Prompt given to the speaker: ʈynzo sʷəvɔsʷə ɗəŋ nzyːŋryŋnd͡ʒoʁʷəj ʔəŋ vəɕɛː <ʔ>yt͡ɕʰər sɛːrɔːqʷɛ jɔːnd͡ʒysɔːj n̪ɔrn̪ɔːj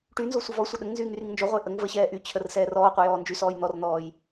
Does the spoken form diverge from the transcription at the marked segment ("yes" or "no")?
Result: no